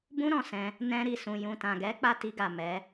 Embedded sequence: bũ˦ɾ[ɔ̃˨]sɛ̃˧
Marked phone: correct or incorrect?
incorrect